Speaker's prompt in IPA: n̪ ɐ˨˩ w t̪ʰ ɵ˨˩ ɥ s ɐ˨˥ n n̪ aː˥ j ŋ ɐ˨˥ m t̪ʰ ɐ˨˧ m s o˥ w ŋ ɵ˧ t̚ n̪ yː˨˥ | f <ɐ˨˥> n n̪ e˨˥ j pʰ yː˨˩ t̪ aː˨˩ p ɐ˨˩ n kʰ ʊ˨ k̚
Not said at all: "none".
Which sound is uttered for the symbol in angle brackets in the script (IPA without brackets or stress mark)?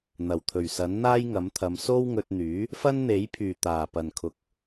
ɐ˥